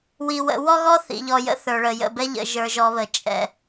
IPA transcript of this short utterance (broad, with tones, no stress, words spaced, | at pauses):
wi˨wə̰˨˦ wɔ˦ɣɔ˦ θḭ˨ʎɔ˨jə̰˦ θə˞˨ɭə˨ jə̰˦˨bɛ˦ ʎə̰˨ ʒə˞˨ʒɔ˨βə˨ t͡ʃʼɛ̰˦